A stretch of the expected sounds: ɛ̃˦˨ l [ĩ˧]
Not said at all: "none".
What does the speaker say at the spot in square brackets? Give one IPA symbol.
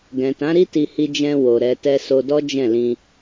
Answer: ĩ˧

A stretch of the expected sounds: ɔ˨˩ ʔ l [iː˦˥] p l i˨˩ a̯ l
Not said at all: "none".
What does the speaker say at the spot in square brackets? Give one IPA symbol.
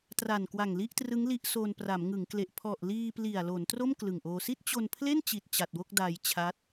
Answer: iː˧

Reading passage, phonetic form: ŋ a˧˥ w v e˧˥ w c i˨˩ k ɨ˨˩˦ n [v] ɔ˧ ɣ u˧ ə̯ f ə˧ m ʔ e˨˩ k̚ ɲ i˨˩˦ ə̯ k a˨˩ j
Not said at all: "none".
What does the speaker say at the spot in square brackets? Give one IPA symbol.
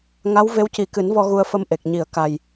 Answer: v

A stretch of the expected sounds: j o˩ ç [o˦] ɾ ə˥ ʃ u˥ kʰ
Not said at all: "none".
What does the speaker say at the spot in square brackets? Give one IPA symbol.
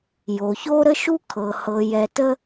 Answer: o˥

